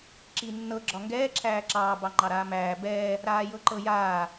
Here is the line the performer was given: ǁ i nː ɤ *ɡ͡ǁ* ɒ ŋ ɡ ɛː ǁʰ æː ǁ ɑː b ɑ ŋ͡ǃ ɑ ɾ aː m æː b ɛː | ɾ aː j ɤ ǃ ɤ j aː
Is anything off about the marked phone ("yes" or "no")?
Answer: no